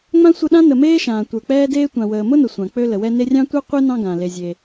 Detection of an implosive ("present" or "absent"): present